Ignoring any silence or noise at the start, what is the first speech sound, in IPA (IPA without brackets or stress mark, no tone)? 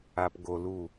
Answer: a